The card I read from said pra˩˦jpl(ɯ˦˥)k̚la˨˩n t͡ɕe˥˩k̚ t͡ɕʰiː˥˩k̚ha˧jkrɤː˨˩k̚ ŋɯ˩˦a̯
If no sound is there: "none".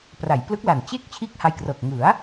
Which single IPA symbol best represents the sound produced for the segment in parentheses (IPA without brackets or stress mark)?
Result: ɯ˦˥